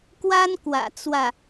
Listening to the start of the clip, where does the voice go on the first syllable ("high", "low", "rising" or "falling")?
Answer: high